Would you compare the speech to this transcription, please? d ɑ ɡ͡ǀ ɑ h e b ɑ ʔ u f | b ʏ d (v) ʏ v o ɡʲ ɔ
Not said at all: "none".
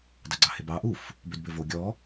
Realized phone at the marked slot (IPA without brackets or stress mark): b